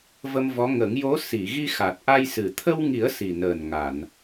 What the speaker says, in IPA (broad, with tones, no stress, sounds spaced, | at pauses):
v ə˧ m v ɔ˧˥ ŋ ə˨˩˦ ŋ j o˧˥ s i˨˩˨ ɣ i˧ x a˨˩ t̚ ʔ a˧ j s ɨ˨˩ t̪ʰ ə˧ w ŋ i˨˩˦ ə̯ s i˨˩ n əː˨˩ n ŋ a˨˩˨ n